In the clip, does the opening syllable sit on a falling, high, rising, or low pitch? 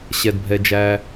low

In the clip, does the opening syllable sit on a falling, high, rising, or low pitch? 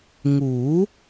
rising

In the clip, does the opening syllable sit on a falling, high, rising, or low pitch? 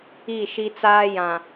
falling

